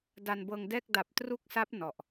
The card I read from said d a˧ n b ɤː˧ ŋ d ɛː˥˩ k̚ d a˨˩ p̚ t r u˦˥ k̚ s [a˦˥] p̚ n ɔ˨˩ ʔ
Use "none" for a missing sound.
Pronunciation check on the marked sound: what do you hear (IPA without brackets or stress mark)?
a˦˥